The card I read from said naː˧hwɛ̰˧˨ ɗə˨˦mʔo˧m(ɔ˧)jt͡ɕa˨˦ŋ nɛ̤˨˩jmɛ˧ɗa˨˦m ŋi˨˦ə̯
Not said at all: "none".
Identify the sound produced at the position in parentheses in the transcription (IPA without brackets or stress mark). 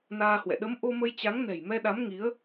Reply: ə˧